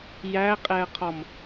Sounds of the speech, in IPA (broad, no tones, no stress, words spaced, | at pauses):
jæqʼɛə̯qʰɔm